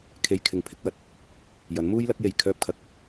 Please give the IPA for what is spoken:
kʰ e˧ j kʰ ɪ˨˧ ŋ pʰ ɪ˧ k̚ w ɐ˧ t̚ | j ɐ˨˥ n m uː˥ j l ɐ˨˥ k̚ j e˨ j kʰ œː˧ p̚ kʰ ɐ˨˥ k̚

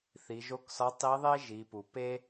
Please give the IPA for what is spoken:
θ i˩˧ ʒ o˧˥ k s ɒ˧˥ tˤ i˧˥ ðˤ e˥ ʒ i˩˧ p u˩ p e˥

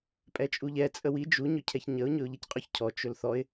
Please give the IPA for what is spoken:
pʼ ɛ t͡ʃʼ u ʎ ɛ t͡sʼ ə w i d͡ʒ u ɲ ɵ cʰ ɛ ç ɲ ə ʊ̯ ɲ ɵ ʊ̯ ʎ i c qʼ ɵ ç cʰ ɔ t͡ʃ ɵ l θ ɔ ɪ̯

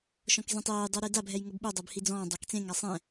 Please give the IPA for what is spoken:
ʃ ɔ̃ k z ĩ tˤ eː j dˤ ɛ ɾ e d a bʱ ɛ j ŋ ɤ b ɓ u dˤ ɤ b h i d͡z ɔ̃ː dˤ a k t͡s ẽ ŋ a sˤ ɛ̃

